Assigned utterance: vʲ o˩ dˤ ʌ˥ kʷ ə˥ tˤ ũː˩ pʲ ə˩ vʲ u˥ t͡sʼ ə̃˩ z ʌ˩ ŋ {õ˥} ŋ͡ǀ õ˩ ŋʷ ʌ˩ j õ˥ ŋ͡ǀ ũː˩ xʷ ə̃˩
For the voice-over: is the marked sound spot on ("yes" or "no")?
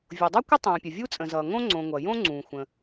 yes